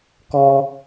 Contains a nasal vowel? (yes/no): no